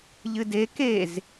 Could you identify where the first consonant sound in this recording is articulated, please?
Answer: palatal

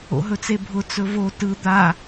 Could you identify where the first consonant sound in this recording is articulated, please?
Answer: glottal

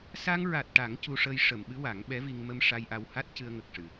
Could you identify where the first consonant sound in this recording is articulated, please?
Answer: alveolar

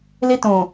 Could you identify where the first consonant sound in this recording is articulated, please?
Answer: alveolar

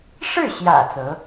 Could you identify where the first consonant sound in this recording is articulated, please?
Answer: retroflex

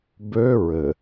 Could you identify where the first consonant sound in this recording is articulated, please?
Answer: labial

